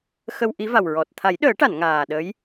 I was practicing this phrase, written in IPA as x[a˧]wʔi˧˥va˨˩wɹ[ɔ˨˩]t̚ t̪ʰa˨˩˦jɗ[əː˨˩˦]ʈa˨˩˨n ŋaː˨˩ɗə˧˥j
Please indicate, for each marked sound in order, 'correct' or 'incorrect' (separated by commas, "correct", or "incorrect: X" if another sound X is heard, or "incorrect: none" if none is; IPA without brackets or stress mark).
incorrect: ə˧, correct, correct